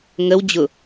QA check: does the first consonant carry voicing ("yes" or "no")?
yes